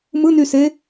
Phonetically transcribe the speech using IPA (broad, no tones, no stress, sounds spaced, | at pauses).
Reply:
m ɯ n y s e